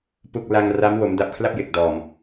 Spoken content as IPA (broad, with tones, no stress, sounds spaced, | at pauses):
p u˥˩ k̚ l a˧ ŋ r a˦˥ m w o˩˦ m d a˨˩ p̚ kʰ l a˥˩ p̚ j e˨˩ k̚ d ɔː˨˩ m